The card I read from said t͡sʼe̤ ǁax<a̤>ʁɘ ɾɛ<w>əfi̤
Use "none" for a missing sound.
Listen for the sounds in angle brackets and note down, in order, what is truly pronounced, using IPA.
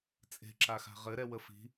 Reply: a̤, w

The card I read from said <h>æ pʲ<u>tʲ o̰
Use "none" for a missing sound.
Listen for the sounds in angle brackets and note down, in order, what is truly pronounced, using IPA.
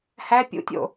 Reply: h, ṵ

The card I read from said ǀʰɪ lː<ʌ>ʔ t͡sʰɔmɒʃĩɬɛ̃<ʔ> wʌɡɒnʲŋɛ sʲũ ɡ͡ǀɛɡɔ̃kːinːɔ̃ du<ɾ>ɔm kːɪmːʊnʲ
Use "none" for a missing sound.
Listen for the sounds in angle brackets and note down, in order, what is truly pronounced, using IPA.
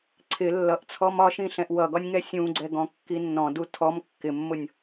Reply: ʌ, ʔ, tʰ

